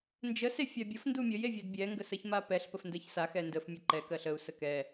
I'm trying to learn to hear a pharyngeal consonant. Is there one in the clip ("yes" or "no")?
no